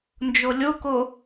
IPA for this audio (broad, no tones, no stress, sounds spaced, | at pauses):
n d͡ʒ o lʲ o k o